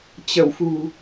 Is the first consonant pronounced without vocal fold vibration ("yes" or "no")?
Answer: yes